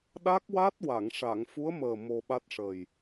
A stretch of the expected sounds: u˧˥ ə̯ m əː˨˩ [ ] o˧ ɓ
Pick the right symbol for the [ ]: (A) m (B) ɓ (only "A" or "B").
A